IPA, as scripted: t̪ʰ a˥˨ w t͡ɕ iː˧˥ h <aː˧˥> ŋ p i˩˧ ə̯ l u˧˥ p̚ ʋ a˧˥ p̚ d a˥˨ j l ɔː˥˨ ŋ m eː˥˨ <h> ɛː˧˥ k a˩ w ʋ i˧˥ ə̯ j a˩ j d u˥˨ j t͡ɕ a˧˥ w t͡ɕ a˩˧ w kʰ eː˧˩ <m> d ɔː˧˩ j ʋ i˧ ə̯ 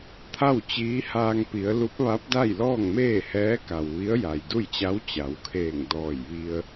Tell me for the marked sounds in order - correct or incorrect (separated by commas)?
incorrect, correct, incorrect